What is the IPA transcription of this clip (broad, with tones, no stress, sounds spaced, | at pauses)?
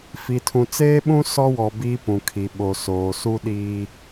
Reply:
f i˨ tʰ ũ˨ t͡s eː˦ ɓ ũ˦ s ɔ˦ w ɔ˨ b iː˦ p ũ˨ kʰ i˨ ɓ o˨ s oː˨ s u˦ ɗ iː˦